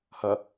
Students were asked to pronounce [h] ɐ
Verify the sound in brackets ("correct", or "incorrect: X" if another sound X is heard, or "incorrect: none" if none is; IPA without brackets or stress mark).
correct